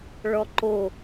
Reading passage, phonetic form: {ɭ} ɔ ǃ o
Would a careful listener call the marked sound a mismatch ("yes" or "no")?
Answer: no